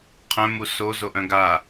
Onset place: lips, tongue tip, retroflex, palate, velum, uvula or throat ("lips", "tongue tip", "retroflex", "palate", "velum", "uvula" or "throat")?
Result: uvula